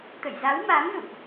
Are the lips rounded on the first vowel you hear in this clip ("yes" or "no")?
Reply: no